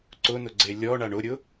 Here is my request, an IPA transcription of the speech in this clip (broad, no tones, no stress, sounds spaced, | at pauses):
ǀ ʊ n ʊ ɡ͡ǀ e lʲ ɔ ɳ a ɳ ʊ ɾʲ ʊ